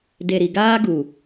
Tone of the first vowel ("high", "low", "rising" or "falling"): low